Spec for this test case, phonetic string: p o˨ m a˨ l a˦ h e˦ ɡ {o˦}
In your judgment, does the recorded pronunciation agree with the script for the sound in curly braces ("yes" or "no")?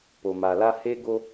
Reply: yes